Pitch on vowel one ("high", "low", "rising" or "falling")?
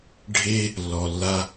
high